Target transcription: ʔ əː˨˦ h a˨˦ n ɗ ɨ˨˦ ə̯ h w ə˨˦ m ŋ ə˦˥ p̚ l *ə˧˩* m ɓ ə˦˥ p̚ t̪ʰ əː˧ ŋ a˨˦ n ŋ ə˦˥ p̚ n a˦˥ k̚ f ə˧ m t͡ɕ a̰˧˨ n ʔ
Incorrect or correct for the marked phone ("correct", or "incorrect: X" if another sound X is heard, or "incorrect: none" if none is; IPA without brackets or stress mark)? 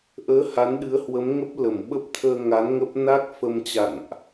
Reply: correct